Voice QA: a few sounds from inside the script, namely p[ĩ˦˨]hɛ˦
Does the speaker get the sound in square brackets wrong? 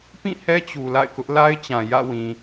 no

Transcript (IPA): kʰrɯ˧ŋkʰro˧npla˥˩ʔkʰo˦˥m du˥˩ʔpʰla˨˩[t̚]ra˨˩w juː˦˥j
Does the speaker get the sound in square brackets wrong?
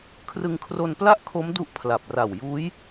yes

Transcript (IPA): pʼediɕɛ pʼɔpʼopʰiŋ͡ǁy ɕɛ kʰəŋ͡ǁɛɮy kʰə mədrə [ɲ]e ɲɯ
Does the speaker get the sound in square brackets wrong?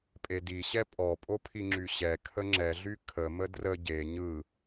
yes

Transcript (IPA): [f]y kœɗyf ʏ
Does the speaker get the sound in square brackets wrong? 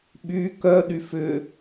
yes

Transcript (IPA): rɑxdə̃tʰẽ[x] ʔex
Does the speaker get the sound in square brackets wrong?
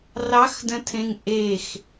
yes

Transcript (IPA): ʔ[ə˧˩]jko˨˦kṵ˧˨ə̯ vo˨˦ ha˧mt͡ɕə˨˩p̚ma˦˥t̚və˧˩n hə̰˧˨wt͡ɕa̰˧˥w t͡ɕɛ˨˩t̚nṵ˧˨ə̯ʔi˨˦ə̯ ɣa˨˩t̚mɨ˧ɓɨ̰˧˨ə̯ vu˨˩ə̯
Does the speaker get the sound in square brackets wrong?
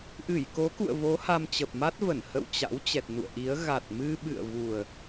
yes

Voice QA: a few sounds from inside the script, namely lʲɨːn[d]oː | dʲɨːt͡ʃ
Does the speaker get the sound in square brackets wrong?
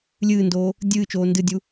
no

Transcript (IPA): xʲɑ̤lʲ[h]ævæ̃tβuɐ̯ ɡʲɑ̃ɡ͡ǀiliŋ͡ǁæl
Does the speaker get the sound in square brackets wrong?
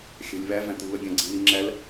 yes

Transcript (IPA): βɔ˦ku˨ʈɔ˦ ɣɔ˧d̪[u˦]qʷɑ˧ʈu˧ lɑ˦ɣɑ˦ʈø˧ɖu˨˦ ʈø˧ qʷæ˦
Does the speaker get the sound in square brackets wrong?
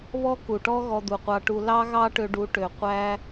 yes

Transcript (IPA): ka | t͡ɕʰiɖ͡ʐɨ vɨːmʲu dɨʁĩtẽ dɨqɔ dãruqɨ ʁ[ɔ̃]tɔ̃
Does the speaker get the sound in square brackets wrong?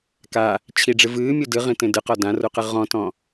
no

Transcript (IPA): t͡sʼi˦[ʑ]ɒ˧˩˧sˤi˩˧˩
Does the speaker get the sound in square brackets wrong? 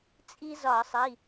yes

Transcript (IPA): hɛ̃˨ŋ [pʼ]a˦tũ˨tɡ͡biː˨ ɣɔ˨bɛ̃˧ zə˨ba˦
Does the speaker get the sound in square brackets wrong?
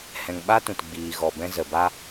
yes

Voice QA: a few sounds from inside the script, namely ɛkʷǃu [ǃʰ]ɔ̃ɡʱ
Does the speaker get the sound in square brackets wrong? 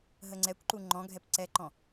yes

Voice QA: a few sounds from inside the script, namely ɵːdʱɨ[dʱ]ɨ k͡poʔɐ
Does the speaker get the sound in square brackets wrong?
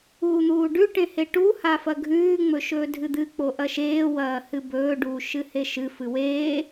yes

